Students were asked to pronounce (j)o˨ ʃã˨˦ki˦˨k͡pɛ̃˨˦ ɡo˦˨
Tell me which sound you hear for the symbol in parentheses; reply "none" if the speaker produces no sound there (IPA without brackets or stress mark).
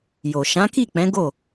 j